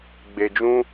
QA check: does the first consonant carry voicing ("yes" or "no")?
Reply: yes